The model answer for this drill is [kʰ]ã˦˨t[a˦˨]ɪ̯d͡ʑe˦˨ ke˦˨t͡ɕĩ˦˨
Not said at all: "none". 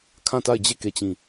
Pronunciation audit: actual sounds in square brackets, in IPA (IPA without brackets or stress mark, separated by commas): kʰ, a˦˨